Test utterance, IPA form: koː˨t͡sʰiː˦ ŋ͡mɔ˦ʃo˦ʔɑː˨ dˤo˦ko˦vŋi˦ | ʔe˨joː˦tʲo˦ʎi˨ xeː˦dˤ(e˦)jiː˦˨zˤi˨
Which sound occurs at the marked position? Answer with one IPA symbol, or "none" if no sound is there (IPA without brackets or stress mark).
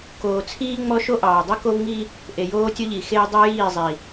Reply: e˦